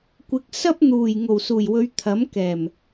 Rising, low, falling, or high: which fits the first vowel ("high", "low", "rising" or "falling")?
rising